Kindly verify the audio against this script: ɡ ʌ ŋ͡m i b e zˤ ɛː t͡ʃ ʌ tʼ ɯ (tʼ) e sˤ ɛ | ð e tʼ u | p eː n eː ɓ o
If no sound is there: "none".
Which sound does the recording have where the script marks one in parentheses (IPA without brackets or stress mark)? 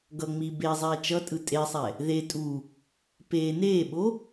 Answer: tʼ